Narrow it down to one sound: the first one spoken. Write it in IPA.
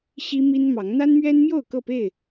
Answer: ɕ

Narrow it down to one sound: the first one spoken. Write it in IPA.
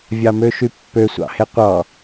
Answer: vʲ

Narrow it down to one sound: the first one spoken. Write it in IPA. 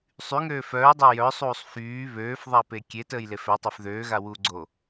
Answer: sˤ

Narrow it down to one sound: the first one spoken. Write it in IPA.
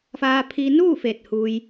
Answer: f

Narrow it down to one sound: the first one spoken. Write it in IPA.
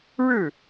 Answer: ɻ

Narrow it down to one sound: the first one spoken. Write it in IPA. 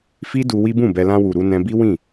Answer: f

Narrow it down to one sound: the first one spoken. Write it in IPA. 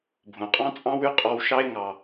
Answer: bʱ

